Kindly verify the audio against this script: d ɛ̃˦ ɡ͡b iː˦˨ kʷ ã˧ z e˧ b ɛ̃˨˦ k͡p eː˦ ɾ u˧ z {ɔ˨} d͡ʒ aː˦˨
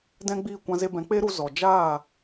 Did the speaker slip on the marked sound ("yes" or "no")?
no